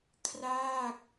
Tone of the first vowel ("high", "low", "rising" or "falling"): falling